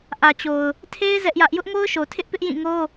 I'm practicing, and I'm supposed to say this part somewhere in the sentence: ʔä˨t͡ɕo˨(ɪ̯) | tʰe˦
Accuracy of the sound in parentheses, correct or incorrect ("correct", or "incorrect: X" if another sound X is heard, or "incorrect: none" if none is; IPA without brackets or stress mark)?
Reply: incorrect: ʊ̯